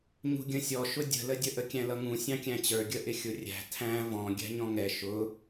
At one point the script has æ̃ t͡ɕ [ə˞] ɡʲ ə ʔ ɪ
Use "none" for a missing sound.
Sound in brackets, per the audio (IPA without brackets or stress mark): ə˞